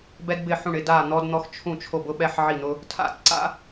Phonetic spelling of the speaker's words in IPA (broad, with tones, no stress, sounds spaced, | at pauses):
b ɛ˥ d b ɪ˥˧ ħ ũ˥˧ ɳ ɪ˥˧ d a˥˧ n̪ ɔ˥ d n̪ ɔ˥ x t͡ʃʰ ũ˥˧ t͡ʃʰ o˥˧ b ʊ˥ ɓ ɛ˥ ħ ʕ i˥˧ n̪ ʊ˥ | tʰ a̰˥˧ ǀ a̰˥